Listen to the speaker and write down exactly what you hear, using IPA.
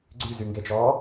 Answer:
ɡ͡ǀ y z y ŋ ɡ e t͡ʃ ɔː

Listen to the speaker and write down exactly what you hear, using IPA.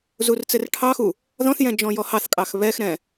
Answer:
z u r t͡s ɘ r ʈʰ ɑ x u | ð ɔ̃ θ j ɛ̃ d͡ʒ ɔ̃ j ɔ h ɑ θ kʼ ɑ x β ɛ x ɾ ɛ̃

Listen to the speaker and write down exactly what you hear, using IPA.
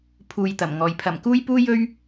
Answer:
pʰ uː˨ j t̪ ɐ˨˩ m ŋ ɔː˨ j pʰ ɐ˨˩ m k uː˥ j p uː˥ j ɵ˥ ɥ

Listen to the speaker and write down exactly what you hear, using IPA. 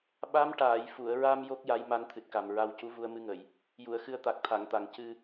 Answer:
ɓ a˧˥ m ʈ aː˨˩˨ j f u˨˩˨ ə̯ ɹ a˧ m j o˦˥ k̚ j a˧˥ j m a˧˥ n t̪ʰ ɨ˨˩ t̚ k a˨˩ m ɹ a˧ w c u˧˥ v u˧ ə̯ m ɨ˧ ŋ ə˨˩˨ j | j u˨˩˨ ə̯ x ɨ˧ ə̯ t̪ a˨˩ k̚ t̪ʰ a˨˩˨ ŋ t̪ a˨˩˨ ŋ c ɨ˨˩

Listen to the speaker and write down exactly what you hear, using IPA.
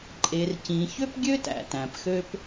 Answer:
ǃʼ e˩ r c ĩ˩ ç ø˥ p ɡʲ ø˥ t æ̰˩ t æ̃˩ p x ø˥ p

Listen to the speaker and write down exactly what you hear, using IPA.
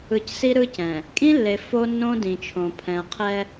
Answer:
ɯ˨ c s i˦ ɾ ɯ˦ c ɛ̃˨ | kʼ ĩ˦ lː e˨ f o˦ nː õ˦ d ĩ˨ t͡ʃʰ õ˨ pʰ ɛ̃˨ ɐ̯ qʰ ɛ˦

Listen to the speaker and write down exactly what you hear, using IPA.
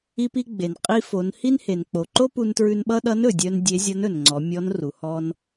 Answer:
i˧ p i˧ ɡ͡b e˩ n qʼ i˧ f o˩˧ n h i˥ n h e˩ n k͡p o˩ ǃ o˥ p u˧ n t ɹ ʉ˧ n ɓ ʌ˥ ɗ ʌ˧˥ n ɵ˩ dʲ œ˧ n dʲ e˧˥ zʲ ʌ˧˥ n ɵ˩ n ŋ͡ǀ ɔ˩˧ mʲ ɔ˧˥ n r u˩ h ɔ˧ n

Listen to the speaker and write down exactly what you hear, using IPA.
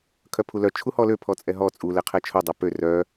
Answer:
kʰ œ pʰ u l œ t͡ʃʰ u h ɔ l ø pʰ ɔ t͡sʼ ɛ ɦ ɔ t͡sʼ u l ɛ qʰ ɛ t͡ʃʰ o dˤ œ p ø r œ

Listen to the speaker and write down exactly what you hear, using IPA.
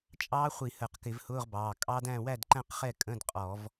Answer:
t͡ʃʼ ɑː˦˥ χʷ i˧˩˧ h əː˧˩˧ q k ɪ˧˩˧ v h ʊː˧˥˧ ʁ b ɑː˩˧˩ kʼ ɑ˦˥ d æ̃˥˨ w æ˥˨ d ǃ æ̃˥˨ q χ ɛ˥˨ kʼ ə̃˧˥˧ d qʼ ɔ˧˩˧ v

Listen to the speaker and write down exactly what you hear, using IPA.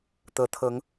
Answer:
t̪ ɤ˨˦ t̪ʰ ɤ˨˦ ŋ

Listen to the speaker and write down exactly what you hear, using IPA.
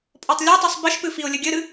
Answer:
pʼ ɔ tˤ lʲ o tˤ u sˤ b ɘ ʃ p ɨ f i ʊ̯ lʲ ɘ ɡʲ ɘ ɾ ɨ

